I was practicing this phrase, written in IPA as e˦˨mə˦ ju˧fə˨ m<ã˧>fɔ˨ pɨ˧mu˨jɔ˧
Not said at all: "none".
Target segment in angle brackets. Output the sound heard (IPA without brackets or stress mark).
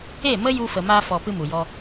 a˧